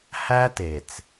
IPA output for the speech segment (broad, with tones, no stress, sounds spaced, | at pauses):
h æ˦ t e˨ t͡s